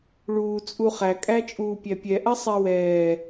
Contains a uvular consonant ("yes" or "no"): yes